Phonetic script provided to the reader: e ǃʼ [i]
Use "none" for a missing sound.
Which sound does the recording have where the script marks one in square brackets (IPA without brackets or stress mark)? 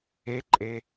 e